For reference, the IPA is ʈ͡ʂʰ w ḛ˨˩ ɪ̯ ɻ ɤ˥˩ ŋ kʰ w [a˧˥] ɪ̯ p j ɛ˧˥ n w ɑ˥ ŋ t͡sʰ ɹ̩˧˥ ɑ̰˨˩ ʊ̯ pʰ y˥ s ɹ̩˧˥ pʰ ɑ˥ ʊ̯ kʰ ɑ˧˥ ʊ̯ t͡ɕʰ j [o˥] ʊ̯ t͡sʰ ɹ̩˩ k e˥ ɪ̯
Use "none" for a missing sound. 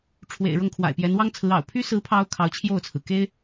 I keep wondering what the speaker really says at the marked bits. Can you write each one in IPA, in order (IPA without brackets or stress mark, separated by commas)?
a̰˨˩, o˥˩